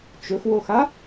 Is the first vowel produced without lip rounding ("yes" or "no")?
no